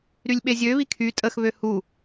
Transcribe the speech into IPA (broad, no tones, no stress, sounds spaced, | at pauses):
ɾ y lʲ ɓ e zʲ ø β i kʰ y tʼ ə x β ø h u